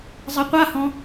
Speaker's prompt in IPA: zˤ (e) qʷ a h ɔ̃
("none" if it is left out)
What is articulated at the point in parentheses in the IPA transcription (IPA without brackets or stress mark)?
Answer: e